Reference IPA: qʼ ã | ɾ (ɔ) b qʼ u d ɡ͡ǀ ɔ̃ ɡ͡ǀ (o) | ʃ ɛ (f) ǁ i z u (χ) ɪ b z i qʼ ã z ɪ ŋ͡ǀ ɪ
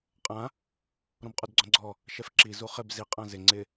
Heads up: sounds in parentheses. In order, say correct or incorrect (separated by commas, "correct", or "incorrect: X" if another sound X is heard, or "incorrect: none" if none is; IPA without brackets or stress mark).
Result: incorrect: ɔ̃, incorrect: ɔ, correct, correct